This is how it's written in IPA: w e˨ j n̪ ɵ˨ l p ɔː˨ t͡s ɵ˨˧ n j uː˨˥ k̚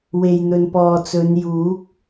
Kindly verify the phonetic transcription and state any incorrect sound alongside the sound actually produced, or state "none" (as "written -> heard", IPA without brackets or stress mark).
l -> n